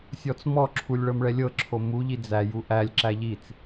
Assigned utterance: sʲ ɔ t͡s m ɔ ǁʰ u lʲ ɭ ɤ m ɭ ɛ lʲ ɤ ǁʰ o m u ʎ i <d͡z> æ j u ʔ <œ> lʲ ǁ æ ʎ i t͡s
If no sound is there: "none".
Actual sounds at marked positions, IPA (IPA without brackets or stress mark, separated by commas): d͡z, æ